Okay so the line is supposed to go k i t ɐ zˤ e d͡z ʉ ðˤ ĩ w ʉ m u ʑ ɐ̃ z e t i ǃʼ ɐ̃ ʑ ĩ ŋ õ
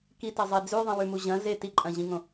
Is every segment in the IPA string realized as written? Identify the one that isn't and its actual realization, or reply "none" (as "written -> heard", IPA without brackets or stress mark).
none